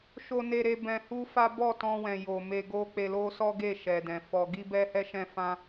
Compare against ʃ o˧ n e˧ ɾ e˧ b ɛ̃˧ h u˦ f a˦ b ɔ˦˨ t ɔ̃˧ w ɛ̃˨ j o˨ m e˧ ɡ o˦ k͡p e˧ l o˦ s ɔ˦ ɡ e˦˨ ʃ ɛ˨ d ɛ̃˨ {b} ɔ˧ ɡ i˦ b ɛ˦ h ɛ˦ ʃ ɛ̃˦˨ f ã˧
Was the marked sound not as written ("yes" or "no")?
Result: yes